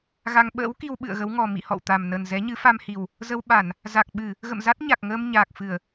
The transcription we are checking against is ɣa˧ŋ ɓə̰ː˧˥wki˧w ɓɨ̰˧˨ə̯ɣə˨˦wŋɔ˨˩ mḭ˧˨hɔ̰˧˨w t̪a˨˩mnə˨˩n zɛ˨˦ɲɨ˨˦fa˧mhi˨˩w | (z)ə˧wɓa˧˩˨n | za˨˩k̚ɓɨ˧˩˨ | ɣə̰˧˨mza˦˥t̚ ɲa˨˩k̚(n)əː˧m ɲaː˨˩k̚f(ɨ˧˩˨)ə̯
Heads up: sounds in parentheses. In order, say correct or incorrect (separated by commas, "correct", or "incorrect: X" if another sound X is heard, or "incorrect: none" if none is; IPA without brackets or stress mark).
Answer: correct, incorrect: ŋ, correct